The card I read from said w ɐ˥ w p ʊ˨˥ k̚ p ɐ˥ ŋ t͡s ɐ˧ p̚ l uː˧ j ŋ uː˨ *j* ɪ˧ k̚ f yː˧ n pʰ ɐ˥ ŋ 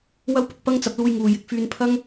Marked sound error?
no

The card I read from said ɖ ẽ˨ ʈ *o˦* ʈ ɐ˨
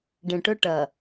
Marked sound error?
yes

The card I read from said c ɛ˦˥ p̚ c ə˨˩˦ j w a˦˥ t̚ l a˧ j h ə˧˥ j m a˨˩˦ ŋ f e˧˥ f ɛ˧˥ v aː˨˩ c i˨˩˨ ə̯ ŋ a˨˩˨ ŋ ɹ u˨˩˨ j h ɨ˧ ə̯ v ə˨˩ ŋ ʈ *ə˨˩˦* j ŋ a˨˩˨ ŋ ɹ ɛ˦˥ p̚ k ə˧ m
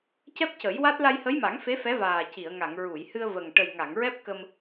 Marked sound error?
yes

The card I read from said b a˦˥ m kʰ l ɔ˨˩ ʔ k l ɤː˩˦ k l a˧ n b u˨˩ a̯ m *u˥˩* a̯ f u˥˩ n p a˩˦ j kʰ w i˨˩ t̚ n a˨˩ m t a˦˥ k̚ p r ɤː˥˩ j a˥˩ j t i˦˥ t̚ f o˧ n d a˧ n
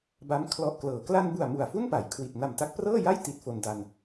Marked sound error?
yes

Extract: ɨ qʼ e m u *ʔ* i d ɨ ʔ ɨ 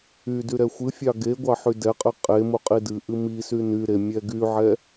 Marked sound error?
yes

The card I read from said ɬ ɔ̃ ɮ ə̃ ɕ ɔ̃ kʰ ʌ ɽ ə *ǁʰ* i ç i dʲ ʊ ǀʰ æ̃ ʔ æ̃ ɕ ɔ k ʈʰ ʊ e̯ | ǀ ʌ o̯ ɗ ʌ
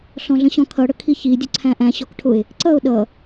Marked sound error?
yes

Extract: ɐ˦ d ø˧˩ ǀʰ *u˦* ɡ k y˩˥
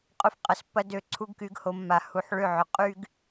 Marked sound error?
no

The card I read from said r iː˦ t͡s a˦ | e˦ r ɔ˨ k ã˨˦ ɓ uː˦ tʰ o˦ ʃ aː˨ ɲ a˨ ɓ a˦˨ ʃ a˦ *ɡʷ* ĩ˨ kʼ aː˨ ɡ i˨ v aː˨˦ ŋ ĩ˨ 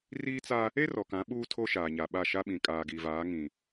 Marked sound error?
yes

